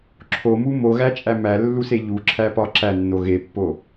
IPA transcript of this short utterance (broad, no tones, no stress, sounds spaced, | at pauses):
ǁʰ o m u m o ɣ æ t͡ʃʼ æ m æ lː u s e ʎ u ǁʰ æ p ɒ ǁ æ nː o ɣ e pː o